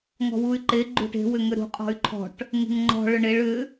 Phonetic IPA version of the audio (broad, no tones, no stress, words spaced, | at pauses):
ŋɔ̤wuy̯ǃe ɡ͡ǃṳʈe̤ wʏŋʏɾṳ qʼɔ̤y̯ǃʰɔ̤ʈ | ŋe̤ŋŋ͡ǃɔ̤ ɭʏɳeɭ ʏ